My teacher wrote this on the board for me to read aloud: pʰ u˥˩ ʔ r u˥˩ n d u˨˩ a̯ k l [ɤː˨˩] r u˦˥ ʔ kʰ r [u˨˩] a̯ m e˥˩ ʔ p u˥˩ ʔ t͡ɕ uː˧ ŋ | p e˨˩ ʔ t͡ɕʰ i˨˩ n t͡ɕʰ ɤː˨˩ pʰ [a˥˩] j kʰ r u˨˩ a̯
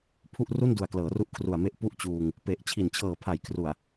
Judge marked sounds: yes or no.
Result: no, yes, no

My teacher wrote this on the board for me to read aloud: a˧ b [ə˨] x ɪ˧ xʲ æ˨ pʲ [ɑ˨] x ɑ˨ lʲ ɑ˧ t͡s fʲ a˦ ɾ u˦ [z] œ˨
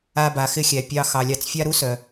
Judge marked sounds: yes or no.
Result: no, no, no

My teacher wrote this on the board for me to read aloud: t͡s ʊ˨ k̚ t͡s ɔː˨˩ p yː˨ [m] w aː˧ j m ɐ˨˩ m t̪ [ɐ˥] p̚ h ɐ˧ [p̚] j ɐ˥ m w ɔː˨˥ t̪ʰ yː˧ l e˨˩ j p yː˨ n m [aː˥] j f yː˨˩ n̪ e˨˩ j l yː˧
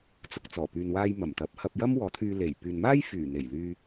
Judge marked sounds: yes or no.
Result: no, no, yes, yes

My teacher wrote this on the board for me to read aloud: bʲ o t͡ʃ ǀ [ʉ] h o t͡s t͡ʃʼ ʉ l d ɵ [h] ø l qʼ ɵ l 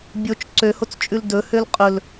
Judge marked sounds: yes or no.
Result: no, yes

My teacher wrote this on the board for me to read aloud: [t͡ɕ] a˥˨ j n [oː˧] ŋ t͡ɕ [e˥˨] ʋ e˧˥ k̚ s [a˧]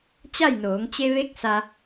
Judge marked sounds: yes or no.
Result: yes, no, no, yes

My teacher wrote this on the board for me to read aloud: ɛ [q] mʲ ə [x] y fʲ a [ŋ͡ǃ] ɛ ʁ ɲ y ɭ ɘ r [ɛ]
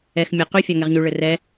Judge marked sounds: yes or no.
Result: no, no, no, yes

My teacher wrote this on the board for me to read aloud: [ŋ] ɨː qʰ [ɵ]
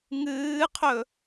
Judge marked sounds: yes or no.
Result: yes, yes

